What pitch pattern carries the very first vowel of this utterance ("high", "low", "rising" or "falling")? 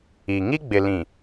low